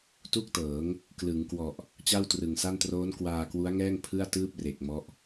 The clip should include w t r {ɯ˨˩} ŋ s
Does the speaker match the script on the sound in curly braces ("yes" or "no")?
yes